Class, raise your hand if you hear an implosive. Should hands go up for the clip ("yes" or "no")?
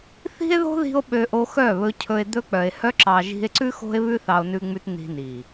yes